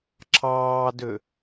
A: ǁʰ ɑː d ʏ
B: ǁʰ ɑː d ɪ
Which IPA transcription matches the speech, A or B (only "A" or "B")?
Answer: A